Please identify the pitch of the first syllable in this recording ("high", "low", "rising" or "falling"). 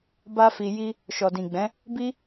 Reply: high